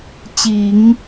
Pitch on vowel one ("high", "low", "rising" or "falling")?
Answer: low